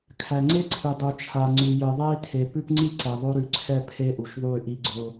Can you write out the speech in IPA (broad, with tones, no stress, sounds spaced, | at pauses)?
kʰ æ˨ ŋ͡ǀ e˦ ǀʰ ɨ˨ dˤ u˨ t͡ʃʰ a˨ ŋ͡ǀ ʉ˨ j ɨ˨ ðˤ e˦ i̯ tʰ e˨ p ʉ˦ p ŋ͡ǀ i˦ ǀ ɛ˨ ðˤ o˦ ɾ ʉ˨ ǀʰ ɛ˦˨ pʰ e˦ ʔ u˨ ʃ ðˤ u˦˨ y̯ ʔ i˦ ɡ͡ǀ ʊ˦